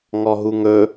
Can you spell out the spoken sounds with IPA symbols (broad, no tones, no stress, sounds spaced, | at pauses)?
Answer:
ŋ ɔ ɦ u ŋ ɵ